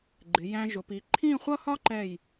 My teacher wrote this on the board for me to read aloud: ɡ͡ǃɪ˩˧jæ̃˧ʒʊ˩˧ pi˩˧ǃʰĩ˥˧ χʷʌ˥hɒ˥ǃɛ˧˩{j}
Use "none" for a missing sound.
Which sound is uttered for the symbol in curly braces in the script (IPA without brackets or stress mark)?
j